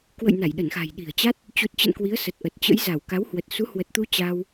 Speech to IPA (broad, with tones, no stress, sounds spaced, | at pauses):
k w ə̰˧˨ j n a˧˩ j ɗ ə˧˩ n x a̤˨˩ j ɗ i̤˨˩ ə̯ t͡ɕ a˦˥ t̚ | t͡ɕ u˨˩ t̚ t͡ɕ ə̰˧˨ n k w i˨˦ ə̯ s ə˨˩ t̚ ʔ ə˨˩ t̚ t͡ɕ ə̰˧˥ j z a˧˩ w k a˨˦ w h w ə˨˩ t̚ s u˨˦ h w ə˨˩ t̚ t̪ u˧ t͡ɕ a˧ w